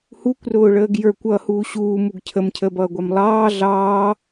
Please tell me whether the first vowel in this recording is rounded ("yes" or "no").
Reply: yes